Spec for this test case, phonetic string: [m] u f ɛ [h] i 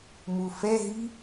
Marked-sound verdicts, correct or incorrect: correct, incorrect

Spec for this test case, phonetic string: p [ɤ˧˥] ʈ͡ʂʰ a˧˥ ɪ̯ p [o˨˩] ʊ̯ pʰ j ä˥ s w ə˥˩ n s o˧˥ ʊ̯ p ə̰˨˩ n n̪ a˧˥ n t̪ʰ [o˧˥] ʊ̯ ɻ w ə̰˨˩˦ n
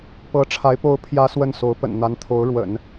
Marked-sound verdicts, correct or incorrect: correct, incorrect, correct

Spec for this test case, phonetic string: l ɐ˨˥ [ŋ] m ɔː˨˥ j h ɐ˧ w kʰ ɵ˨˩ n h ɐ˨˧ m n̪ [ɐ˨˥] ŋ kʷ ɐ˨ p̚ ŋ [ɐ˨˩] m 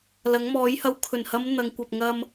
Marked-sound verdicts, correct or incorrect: correct, incorrect, incorrect

